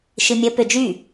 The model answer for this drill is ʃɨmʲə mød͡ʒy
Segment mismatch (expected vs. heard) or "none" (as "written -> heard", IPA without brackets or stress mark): m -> p